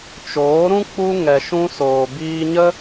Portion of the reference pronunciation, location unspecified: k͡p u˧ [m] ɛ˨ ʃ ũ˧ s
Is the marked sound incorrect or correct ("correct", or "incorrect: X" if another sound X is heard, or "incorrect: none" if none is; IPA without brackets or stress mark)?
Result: incorrect: ŋ